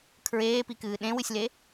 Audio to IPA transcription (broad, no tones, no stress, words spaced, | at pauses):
kʰɹeːpikɨː ɗẽwɨsʲle